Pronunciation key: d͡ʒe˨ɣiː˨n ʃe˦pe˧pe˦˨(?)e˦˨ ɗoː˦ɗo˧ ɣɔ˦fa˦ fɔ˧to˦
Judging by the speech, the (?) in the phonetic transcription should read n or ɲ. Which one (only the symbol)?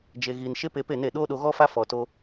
n